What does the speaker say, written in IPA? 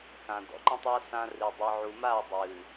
x ã˨ d ɔ̰˨ ǃ ə̃˦ tˤ a˦ s ã˦ r i˨ dˤ ɨ˨ ʕ u˨ m a˦˨ dˤ ɨː˨

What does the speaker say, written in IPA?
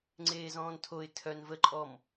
ŋ͡ǀ eː z ɔ̃ː n tʰ o ɪ̯ tʰ œ n v ə ǃʼ ɔ m

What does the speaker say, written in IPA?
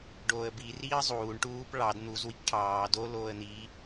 ɖ oː ə̯ b i r iː ə̯ zˤ uː ɳ ʈ uː p ɭ ɑ d n̪ u z w i k ʈʰ ɑː d o l oː ə̯ n̪ iː

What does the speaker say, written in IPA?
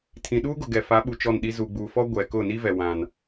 tʰ ĩ˨ ɗ uː˦ ɡ ʊ˨ ɡ ɛ˨ f a˨˦ ɓ u˨ t͡ʃ ɔ˦˨ n ɗ i˦ z u˨ ɡ͡b u˨ f ɔ˦ ɡʷ ɛ˨ k ʊ˦˨ n i˦ v ɛ˨ w ã˦ n

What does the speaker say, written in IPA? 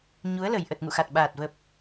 ɲ u˨˦ ə̯ l ə˨˩ j ʔ ə˨˩ t̚ ŋ ṵ˧˨ x a˨˩ t̚ ɓ aː˨˩ t̚ v ə˨˩ p̚

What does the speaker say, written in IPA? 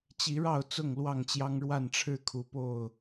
t͡ɕ i˨˦ ɻ ɑ˥˨ ʊ̯ t͡s ʊ˥˨ ŋ l w ɑ˥˨ ŋ t͡ɕ j ɑ˦ ŋ ɻ w a˥˨ n ʈ͡ʂʰ ɻ̩˦ kʰ u˨˦ p o˥˨ ʊ̯

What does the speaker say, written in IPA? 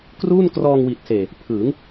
k r uː˥˩ n k r ɔː˧ ŋ w i˨˩ t̚ s eː˨˩ | pʰ ɯː˩˦ ŋ

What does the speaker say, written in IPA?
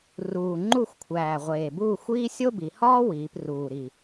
r uː˨˩ ŋ͡ǃ u˥˨ xʷ kʷʰ æː˨˩ ʁʷ eː˨˩ b uː˥˨ xʷ iː˥ sʲ o˥ b i˩˧ h ɒː˥ w iː˩˧ p r uː˨˩ ɾ i˨˩

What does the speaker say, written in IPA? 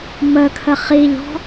m ə kʰ ə χ i ʎ ɔ̤

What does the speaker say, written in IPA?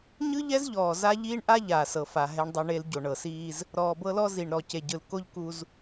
ɲ ɯ˦ ʎ ɛ˦ z ʎ ɔː˨ z a˦ ʎ iː˦ ɳ ʔ a˦ ʎ aː˨ s ɤ˨ f a˨ ɦ ɛ˦ ɳ dˤ o˦ ɳ e˦ l ɟ o˨ ɳ ɤ˨ s iː˦ z | ɾ ɔː˨ b ɤ˦ l ɔ˦ z i˨ ɳ ɾ ɔ˨ c e˨ ɟ ɯ˨ l k o˦ ʎ k u˦ z

